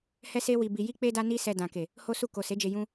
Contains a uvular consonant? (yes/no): no